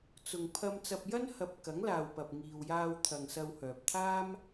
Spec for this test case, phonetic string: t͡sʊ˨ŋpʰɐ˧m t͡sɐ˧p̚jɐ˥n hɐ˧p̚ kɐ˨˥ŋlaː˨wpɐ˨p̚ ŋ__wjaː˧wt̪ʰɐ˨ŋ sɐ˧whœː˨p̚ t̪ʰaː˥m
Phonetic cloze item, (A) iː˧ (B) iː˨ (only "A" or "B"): B